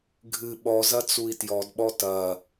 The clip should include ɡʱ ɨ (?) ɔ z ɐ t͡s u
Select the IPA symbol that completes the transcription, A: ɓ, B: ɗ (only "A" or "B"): A